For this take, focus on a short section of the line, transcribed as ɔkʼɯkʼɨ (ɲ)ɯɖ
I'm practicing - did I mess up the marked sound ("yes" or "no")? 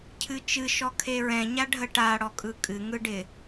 yes